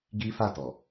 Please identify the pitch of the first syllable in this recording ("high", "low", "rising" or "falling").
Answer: high